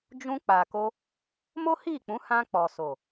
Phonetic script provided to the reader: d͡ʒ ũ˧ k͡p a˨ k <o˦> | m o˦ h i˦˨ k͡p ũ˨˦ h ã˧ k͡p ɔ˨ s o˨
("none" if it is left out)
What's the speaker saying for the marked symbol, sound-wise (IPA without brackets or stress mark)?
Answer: o˧